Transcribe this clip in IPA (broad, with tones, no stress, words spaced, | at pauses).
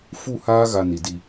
fu˦˨haː˦ɣa˨ ni˨di˦